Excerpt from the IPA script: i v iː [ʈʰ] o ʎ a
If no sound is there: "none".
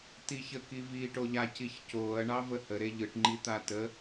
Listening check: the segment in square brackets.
ʈ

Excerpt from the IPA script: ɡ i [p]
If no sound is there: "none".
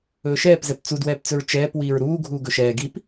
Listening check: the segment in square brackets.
p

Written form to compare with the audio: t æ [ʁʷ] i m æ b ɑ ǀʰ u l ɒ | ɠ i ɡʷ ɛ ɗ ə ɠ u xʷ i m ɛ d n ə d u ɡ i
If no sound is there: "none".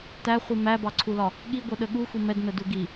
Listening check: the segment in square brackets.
χʷ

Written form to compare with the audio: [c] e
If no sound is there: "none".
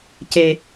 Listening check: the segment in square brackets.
c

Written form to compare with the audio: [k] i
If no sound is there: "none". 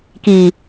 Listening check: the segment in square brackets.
k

